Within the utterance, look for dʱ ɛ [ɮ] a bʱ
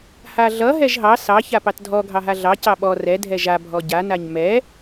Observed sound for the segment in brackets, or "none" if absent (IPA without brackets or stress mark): ʒ